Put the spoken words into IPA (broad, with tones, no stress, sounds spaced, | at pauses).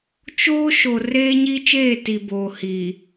t͡ʃ oː˦ ʃ o˨ r eː˦ ɲ i˦ t͡ʃ eː˦˨ t i˨ b oː˨ h iː˨